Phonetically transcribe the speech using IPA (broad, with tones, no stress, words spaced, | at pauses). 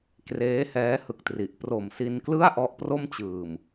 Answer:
kreː˦˥hɛː˦˥hɯ˨˩k̚tri˨˩ʔ pro˨˩msi˧nklɯ˥˩a̯ ʔɔ˦˥ʔpro˥˩mt͡ɕɯː˨˩m